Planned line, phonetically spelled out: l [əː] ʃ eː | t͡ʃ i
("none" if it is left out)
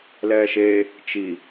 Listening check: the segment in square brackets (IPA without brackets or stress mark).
ɛː